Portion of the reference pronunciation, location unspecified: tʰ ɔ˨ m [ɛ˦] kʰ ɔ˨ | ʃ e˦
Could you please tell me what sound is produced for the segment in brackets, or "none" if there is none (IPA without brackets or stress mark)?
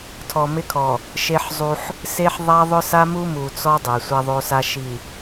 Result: ɪ˦